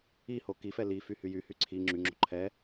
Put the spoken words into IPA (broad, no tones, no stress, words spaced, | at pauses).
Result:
iho kifɛ lify hyjyhy ǀʰi ŋ͡ǁyŋ͡ǁo̤ ǃʰɛ